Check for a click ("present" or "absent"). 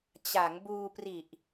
absent